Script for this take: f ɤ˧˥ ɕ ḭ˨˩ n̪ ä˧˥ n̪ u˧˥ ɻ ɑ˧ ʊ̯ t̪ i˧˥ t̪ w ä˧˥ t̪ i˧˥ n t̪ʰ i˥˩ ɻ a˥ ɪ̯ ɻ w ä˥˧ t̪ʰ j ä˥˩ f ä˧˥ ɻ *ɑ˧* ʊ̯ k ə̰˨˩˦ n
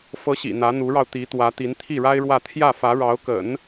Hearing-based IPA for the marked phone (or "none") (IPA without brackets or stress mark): ɑ˧˥